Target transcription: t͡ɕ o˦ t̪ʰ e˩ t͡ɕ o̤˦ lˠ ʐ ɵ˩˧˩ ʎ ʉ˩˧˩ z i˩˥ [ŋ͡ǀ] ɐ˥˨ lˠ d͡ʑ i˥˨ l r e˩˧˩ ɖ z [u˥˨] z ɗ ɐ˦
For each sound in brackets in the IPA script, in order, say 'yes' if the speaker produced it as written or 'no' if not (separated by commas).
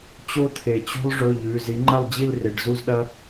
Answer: no, yes